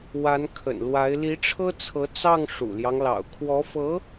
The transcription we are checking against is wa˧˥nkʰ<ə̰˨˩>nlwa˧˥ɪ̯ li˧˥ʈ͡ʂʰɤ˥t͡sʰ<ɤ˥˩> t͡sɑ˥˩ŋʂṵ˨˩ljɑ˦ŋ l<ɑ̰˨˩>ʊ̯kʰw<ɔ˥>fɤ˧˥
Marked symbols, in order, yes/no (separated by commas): yes, no, yes, no